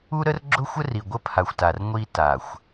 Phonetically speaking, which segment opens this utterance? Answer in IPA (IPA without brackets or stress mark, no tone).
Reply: u